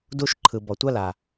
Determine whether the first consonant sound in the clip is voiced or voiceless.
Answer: voiced